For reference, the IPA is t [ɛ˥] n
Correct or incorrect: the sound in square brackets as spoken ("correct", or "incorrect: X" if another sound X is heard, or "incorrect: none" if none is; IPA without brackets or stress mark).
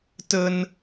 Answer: incorrect: ə˥